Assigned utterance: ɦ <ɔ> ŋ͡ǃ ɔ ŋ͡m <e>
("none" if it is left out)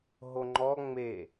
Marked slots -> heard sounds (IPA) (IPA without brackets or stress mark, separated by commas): o, e